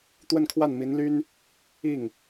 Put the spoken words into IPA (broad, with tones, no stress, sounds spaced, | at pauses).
t̪ w ə˥˧ n kʰ w a˥˩ n m i˧˥ n l y˥ n | i˥˩ ŋ